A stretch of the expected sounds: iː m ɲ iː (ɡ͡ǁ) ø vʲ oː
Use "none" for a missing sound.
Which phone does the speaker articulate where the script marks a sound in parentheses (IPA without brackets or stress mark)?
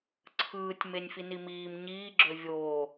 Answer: ɡ͡ǁ